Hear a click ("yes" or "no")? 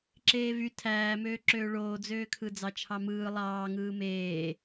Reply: yes